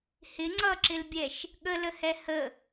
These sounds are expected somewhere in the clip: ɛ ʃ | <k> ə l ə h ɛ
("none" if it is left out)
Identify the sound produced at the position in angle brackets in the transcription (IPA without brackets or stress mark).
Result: ɠ